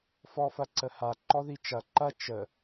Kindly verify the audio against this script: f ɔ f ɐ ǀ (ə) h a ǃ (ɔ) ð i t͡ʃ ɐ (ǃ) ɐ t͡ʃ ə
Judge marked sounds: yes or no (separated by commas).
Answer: yes, yes, yes